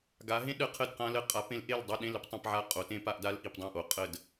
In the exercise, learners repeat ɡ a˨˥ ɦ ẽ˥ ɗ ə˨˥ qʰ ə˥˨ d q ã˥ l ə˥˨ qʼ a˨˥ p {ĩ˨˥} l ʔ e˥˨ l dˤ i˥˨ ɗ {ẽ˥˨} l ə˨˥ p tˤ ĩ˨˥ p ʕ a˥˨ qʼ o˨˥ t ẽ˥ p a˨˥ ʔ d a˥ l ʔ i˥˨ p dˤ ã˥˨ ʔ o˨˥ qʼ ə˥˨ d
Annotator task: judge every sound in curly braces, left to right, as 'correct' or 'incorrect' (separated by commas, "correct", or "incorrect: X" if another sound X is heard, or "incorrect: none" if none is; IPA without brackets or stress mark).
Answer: incorrect: ẽ˨˥, correct